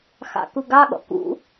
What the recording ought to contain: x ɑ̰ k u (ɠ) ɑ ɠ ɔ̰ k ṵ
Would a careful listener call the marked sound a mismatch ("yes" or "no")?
yes